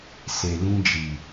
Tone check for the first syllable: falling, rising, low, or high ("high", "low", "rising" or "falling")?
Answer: low